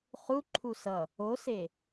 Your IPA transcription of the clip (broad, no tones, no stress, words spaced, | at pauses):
χuǃʰu sʌ | ose